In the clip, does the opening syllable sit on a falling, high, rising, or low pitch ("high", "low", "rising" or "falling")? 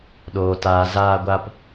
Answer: low